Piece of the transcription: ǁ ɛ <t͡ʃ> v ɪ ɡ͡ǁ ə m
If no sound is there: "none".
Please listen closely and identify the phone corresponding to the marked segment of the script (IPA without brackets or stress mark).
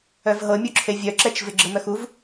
t͡ʃ